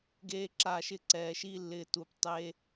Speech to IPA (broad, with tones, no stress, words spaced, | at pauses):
ɡeː˦ǁa˦˨ʃɪ˦ ǀɛː˨ʃi˧lːɪː˨ tu˨ptˤe˧